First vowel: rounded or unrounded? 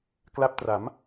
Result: unrounded